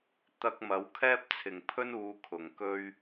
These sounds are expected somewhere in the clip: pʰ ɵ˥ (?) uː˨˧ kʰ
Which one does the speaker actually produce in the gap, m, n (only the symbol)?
n